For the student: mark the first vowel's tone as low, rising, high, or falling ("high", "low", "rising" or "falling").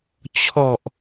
low